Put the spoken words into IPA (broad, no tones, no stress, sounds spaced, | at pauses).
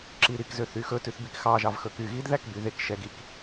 ǁ i ɾ i k z ø θ y x ɵ t ʉ θ b i k x ɑ ʒ ɑ v x ɵ k y ɣ i d ð æ k b y ð e k ʃ ɛ ɡ i k